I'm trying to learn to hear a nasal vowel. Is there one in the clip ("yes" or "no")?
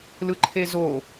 no